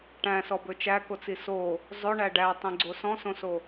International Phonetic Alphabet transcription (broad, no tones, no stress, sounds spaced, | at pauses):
ʈ æ̃ s ɔ b ɵ t͡ʃ æ k o t͡s i s o | zˤ ɵ ɳ æ ɖ æ tˤ ĩ ɡ͡ǀ o s ɔ̃ s õ s o